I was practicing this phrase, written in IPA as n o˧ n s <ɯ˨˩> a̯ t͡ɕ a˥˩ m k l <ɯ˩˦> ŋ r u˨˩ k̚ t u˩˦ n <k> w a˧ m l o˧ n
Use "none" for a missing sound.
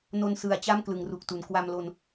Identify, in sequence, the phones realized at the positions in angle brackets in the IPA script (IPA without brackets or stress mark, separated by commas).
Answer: ɯ˨˩, ɯ˩˦, k